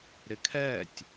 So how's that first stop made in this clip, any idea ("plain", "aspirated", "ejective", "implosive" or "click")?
aspirated